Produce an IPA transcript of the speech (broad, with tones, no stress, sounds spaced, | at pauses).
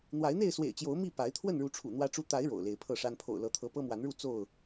n̪ w a˨˦ ɪ̯ n̪ e˥˨ ɪ̯ s w ḛ˨˩ ɪ̯ t͡ɕ j o˨˦ ʊ̯ m i˥˨ p a˨˦ ɪ̯ t̪ʰ w ə˥˨ n ɻ u˨˦ ʈ͡ʂʰ ṵ˨˩ n̪ w ä˦ ʈ͡ʂ u˦ t̪ a˨˦ ɪ̯ ɻ o̰˨˩ ʊ̯ l e˨˦ ɪ̯ pʰ ɤ˥˨ ʂ a˦ n pʰ o̰˨˩ ʊ̯ l ɤ˨˦ t̪ʰ ɤ˨˦ p ɤ˦ m w a˨˦ n ɻ u˥˨ t͡s o˥˨ ʊ̯